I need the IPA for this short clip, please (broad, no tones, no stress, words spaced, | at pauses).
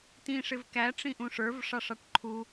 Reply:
tĩʂɪv kæʈ͡ʂĩʔũʂ ə˞vʂɑʂɑʈ ǃʰu